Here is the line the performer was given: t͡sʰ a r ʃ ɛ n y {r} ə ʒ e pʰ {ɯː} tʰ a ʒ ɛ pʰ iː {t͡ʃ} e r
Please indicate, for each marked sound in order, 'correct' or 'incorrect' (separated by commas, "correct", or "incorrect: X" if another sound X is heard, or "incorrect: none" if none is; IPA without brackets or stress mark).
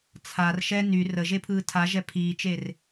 correct, correct, correct